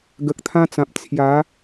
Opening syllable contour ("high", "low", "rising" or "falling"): low